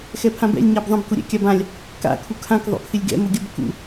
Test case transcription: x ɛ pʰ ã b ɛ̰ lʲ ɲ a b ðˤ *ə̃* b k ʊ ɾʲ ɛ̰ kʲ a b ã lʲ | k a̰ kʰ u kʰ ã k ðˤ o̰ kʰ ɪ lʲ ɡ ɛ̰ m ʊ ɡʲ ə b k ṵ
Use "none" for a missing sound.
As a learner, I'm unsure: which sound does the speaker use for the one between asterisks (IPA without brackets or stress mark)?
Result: ə̃